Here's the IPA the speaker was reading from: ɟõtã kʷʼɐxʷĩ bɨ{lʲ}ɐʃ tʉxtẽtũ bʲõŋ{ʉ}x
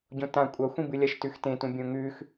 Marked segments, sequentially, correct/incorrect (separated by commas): correct, correct